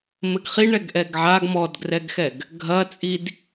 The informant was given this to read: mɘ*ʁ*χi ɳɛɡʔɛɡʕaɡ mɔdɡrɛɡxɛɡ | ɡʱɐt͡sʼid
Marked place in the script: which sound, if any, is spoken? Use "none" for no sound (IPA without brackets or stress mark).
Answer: ɡ